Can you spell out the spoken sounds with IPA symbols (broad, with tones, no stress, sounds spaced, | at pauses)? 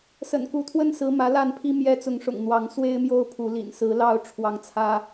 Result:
s ə̰˨˩ n k u˨˦ t̪ʰ w ə˦ n s ɹ̩˨˦ m ä˨˦ l a˥˨ n pʰ i˦ m j ɛ˦ t͡s ʊ˨˦ ŋ ʂ ʊ̰˨˩ ŋ n̪ w ɑ˨˦ ŋ s w e˦ ɪ̯ m j o˦ ʊ̯ pʰ u˨˦ l ḭ˨˩ n s ɹ̩˨˦ l ɑ˥˨ ʊ̯ ʈ͡ʂʰ w ɑ˨˦ ŋ t͡sʰ ä˦